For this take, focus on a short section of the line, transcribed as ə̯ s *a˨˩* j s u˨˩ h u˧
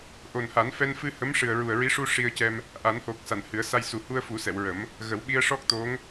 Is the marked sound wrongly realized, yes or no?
yes